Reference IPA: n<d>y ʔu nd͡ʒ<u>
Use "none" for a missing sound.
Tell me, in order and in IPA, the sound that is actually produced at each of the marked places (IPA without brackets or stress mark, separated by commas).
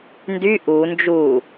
d, u